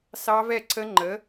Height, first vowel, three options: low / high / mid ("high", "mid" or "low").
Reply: low